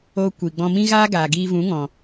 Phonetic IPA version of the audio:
o˧ kʷ i˨ ɡ͡b ɔ̃˧ m ĩ˦ ɣ aː˦ ɡ aː˨ ɡ iː˧ v ũ˨˦ ŋ ɔ̃˨

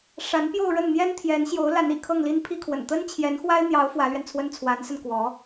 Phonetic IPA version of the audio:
ʂ a˧˥ n p j o˥˧ ʊ̯ ɻ ə˥˩ n n̪ j ɛ˥ n t̪ʰ j ɛ˧˥ n ɕ j o˧˥ ʊ̯ l a˧˥ n ḭ˨˩ kʰ ɤ˥˩ ŋ l i˥ n pʰ i˥ kʰ w ə̰˨˩ n t̪ ə˥ n t͡ɕʰ j ɛ˧˥ n x w a˥ ɪ̯ n̪ j ɑ˧˥ ʊ̯ f w ä˧˥ l ɥ ɛ˧ n t͡sʰ w ə˥ n t͡sʰ w a˧˥ n s ə˧ n k w ɔ˧˥

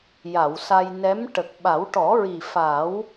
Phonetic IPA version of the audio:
j a˨˩˨ w s a˧ j n ɛ˧˥ m ʈ ə˨˩ k̚ ɓ a˨˩˦ w ʈ ɔ˨˩˦ ɹ i˨˩ f a˨˩˦ w

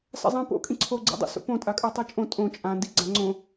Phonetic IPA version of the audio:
s a̰ zˤ ĩ p o̰ kʼ ĩ ǀʰ o ɡ͡ǀ ḭ dˤ ḭ s o̰ p õ tʼ a kʼ ə˞ tˤ ə˞ t͡ʃʼ õ tʼ õ t͡ʃʼ ã n d i ɡ͡ǀ ã ŋ͡ǀ õ

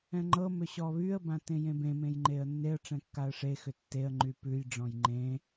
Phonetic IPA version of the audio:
ɛ̃ ŋ͡ǃ ɤ m ʏ ɕ ɔ β y ə̯ b ã t ẽ j ẽ b ẽ m ẽ j ŋ͡ǃ e ə̯ nː e ə̯ ʈ͡ʂ ɛ̃ kː a ə̯ ʂ e x ʏ tː e ə̯ ŋ͡ǃ y p ʉ j ɖ͡ʐ ɔ̃ j ŋ͡ǃ ẽ

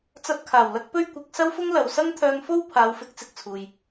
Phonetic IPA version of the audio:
t͡s ɐ˧ t̚ kʰ aː˨˩ w l ɐ˥ k̚ p ɵ˥ ɥ kʷ ɪ˨˥ k̚ s ɐ˥ w f ʊ˥ ŋ l ɐ˨ w s ɐ˥ ŋ t̪ʰ œː˧ ŋ f o˥ w pʰ aː˨˧ w f ɪ˨˥ k̚ t͡s ɪ˨ k̚ t͡sʰ uː˨ j

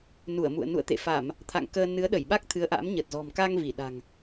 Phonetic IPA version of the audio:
n u˧˩ ə̯ m ṵ˧˨ ə̯ n ṵ˧˨ ə̯ t̪ ḛ˧˨ f a˧˩˨ m | t̪ʰ a̰˧˨ ŋ k əː˧ n ɨ˨˦ ə̯ ɗ ə˧˩ j ɓ a˦˥ k̚ t̪ʰ ɨ˨˦ ə̯ ʔ a̰˧˥ m ɲ ə˨˩ t̚ z ɔ̤˨˩ m k a˧ ŋ v i˧˩ ɗ a̤˨˩ ŋ

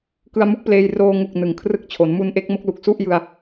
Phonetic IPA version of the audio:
k ɯ˧ a̯ m u˦˥ k̚ p l eː˧ j r oː˧ ŋ u˨˩ k̚ n ɯ˩˦ ŋ kʰ r ɯ˥˩ k̚ t͡ɕʰ o˩˦ n m u˧ n ʔ e˦˥ k̚ m o˦˥ k̚ l u˨˩ k̚ s u˥˩ ʔ j ɯ˧ a̯

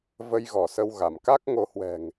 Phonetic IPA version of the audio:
v ə˧ j ɣ ɔ˧˩ s ə˧ w ɣ a˧˩ m k a˦˥ k̚ ŋ o˨˦ h w ɛ̤˨˩ ŋ

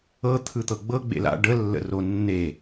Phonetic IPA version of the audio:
ɤ t̪ʰ ɯ t̪ ɤ ɡ͡b ɤ ɡ͡b ḛ l a̰ ɖ ə lː ə̰ r o nː e

